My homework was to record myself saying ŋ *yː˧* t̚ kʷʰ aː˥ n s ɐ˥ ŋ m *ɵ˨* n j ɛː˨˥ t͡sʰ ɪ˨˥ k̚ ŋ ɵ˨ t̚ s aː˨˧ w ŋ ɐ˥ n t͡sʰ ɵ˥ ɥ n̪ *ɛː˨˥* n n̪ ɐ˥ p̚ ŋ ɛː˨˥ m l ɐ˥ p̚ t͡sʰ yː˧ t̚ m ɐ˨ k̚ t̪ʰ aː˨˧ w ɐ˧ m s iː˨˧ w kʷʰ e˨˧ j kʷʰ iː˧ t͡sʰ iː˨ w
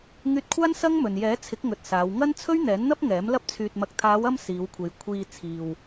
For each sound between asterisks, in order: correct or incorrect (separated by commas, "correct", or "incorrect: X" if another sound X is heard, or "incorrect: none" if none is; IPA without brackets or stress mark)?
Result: correct, correct, correct